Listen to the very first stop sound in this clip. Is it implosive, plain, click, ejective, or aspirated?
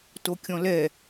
plain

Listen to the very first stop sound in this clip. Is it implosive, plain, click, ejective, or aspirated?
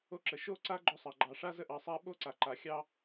click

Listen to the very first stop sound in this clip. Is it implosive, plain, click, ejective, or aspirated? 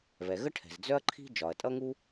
aspirated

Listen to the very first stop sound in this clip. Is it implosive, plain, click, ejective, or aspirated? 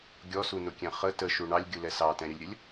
plain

